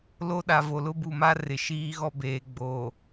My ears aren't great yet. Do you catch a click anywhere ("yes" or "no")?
no